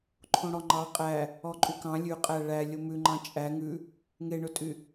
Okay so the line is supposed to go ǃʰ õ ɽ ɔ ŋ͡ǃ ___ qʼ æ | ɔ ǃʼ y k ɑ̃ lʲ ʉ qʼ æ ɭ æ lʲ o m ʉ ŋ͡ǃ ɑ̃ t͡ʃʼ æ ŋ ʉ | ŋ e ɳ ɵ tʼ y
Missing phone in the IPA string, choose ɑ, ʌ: ɑ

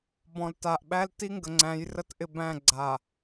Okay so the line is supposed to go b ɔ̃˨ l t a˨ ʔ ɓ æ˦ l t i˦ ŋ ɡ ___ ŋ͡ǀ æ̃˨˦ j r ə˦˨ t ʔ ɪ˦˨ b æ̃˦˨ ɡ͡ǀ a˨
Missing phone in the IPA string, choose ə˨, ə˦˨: ə˨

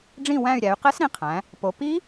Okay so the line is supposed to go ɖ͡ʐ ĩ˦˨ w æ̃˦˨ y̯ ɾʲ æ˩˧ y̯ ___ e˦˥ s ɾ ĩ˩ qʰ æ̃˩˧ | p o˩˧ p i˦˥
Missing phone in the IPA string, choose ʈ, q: q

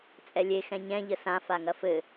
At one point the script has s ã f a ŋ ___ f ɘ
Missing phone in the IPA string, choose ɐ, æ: ɐ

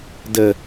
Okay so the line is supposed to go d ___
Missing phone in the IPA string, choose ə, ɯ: ə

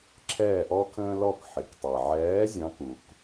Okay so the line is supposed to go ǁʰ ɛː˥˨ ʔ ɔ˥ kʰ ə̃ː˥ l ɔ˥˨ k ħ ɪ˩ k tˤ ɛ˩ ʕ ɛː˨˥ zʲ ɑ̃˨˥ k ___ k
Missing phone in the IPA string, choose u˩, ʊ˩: u˩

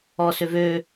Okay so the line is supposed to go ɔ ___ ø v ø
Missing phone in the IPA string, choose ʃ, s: s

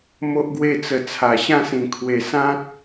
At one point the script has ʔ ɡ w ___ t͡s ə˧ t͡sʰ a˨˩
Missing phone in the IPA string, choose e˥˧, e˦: e˥˧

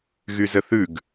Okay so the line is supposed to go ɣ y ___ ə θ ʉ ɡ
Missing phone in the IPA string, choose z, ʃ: z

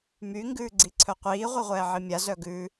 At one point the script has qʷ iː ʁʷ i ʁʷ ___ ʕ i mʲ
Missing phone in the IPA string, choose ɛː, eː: ɛː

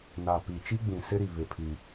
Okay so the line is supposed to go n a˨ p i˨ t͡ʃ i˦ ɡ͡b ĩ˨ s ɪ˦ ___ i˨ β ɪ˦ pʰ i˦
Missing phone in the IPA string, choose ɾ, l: ɾ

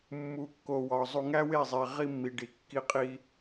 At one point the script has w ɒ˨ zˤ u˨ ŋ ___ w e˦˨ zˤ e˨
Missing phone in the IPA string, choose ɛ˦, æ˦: æ˦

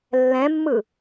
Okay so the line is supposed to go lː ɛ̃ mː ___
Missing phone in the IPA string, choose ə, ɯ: ɯ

